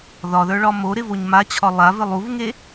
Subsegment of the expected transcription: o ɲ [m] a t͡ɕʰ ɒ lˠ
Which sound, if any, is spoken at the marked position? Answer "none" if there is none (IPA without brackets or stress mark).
m